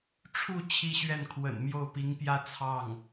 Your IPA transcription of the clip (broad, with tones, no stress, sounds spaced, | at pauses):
ʈ͡ʂʰ u˥˩ t͡ɕʰ i˥ ɕ ɥ ɛ˥˩ n kʰ w ə̰˨˩ n m j o˥˩ ʊ̯ p i˧˥ ŋ p j ä˥ t͡sʰ ɑ˥˩ ŋ